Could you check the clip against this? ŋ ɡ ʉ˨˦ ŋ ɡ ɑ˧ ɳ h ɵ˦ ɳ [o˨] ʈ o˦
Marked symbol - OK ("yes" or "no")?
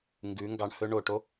yes